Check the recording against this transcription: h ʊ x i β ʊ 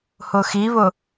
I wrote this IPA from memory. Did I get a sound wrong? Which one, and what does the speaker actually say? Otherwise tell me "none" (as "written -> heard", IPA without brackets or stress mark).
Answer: none